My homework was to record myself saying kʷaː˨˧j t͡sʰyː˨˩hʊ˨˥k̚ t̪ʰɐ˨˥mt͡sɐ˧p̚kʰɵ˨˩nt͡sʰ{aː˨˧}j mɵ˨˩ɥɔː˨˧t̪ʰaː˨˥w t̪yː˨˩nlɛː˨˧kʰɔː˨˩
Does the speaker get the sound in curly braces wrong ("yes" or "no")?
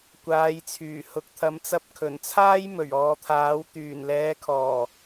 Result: yes